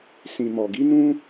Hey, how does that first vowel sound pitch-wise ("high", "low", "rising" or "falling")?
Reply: low